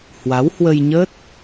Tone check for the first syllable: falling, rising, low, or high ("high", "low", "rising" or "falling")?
rising